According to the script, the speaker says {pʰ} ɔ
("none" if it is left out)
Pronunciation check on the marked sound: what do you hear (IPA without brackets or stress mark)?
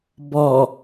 b